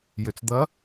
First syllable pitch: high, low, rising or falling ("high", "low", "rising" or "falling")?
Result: low